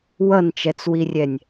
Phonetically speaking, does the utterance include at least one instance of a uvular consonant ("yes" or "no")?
no